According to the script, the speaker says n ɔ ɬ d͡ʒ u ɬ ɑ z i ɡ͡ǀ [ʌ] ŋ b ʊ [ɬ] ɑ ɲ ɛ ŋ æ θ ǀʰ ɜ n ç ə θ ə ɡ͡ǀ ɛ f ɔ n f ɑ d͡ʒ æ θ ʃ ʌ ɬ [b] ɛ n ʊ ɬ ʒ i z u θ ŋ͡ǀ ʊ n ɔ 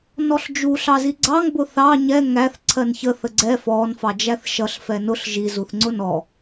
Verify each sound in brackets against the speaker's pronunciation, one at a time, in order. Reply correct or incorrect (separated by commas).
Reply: incorrect, incorrect, incorrect